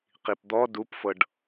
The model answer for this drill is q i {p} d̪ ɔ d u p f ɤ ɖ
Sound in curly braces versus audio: correct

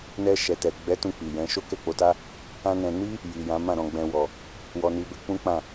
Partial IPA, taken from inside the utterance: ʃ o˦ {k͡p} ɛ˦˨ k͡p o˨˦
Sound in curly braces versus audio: incorrect: k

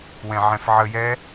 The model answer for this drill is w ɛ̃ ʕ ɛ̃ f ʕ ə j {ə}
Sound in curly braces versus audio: incorrect: ɛ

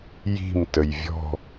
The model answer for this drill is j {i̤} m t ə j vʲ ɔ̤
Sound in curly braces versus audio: correct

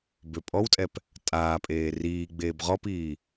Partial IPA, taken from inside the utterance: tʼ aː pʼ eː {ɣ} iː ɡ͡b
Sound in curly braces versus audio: incorrect: r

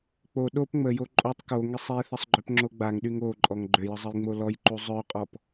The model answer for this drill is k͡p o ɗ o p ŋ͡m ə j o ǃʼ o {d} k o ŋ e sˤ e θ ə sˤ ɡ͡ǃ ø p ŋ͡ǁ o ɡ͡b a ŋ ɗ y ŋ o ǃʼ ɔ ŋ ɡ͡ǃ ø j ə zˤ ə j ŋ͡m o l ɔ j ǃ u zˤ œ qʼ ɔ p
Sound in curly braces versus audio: incorrect: tˤ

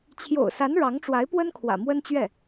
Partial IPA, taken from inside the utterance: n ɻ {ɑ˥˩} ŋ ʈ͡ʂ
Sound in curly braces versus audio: incorrect: ɑ˧˥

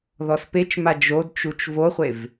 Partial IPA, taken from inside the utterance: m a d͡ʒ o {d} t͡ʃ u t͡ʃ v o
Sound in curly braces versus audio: correct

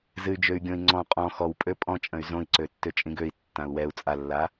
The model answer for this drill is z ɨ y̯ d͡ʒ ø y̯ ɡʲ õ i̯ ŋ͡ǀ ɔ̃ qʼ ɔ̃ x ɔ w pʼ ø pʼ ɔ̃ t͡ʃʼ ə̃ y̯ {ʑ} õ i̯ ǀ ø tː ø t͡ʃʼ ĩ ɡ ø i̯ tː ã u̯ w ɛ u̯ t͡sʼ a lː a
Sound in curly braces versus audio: incorrect: z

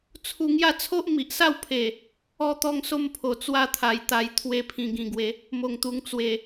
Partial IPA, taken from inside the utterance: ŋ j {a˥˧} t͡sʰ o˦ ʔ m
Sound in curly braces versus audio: correct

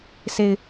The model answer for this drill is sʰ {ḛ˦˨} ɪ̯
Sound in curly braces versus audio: incorrect: e˨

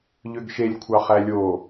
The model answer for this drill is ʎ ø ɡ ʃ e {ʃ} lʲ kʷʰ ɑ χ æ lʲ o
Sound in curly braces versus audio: incorrect: none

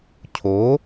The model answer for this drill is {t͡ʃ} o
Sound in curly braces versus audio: incorrect: cʰ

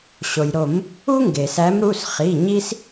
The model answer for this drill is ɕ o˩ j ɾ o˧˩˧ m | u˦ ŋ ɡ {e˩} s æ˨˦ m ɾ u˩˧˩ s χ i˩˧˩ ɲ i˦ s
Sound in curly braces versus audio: correct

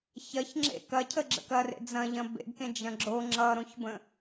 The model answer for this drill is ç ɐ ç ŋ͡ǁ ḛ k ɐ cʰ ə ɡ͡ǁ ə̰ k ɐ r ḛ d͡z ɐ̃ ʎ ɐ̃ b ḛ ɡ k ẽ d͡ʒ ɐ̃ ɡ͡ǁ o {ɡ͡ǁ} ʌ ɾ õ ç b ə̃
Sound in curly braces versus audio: incorrect: ŋ͡ǁ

